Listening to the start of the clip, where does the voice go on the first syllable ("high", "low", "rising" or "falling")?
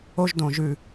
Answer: high